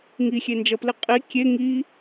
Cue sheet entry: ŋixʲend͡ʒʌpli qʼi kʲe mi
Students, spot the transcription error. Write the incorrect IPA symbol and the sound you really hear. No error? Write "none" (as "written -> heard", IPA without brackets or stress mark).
m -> ŋ